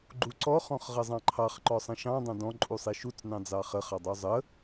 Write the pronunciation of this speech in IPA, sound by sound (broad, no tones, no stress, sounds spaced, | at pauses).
ɡ͡ǃ u ǀ ɔ χ ɔ̃ χ ʁ ə zˤ ɑ̃ ǃʰ ɑ χ ǃ ɔ sˤ ə̃ ʃ ɑ̃ dˤ ɑ̃ d ɔ̃ ǃʼ u sˤ i ʃ u t͡s n ɑ̃ d͡z ɑ χ ə χ ɑ dˤ ə u̯ zˤ ə